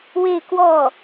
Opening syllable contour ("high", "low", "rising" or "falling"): falling